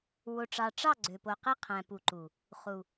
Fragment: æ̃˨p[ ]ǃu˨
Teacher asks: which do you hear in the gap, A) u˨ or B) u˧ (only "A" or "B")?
A